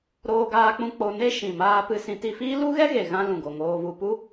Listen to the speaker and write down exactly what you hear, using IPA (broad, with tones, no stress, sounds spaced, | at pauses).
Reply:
ɾ oː˧ ɡ aː˧ k͡p ũ˧ k͡p o˧ n e˦ ʃ ĩ˨ m aː˧ p ɨ˧ s ĩ˧ t i˧ f iː˦ l u˦ ɣ ɛ˦ ɣ e˨ ɣ ã˦ l ũ˨ ɡ o˨ ŋ oː˧ v u˧ p u˦